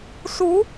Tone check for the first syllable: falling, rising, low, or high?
rising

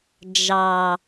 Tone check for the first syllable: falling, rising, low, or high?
low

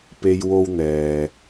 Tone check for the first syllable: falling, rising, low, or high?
high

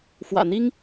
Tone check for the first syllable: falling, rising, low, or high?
low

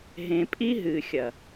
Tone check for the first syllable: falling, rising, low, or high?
low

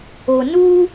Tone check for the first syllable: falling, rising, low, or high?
low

